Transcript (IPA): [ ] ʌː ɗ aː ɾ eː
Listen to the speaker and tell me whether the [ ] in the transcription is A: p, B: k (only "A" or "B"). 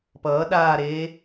A